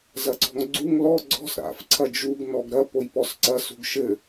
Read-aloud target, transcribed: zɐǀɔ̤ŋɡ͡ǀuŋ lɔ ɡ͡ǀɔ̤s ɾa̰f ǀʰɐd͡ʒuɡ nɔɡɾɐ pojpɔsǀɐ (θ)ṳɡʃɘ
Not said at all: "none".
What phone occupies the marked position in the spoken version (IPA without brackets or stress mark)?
s